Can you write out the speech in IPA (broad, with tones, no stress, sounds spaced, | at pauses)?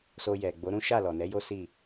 s o˧ j ɛ˨ ɡ͡b o˨˦ ɾ ũ˦ ʃ a˦˨ l ɔ˨ n ɛ˨˦ j o˦ s i˦˨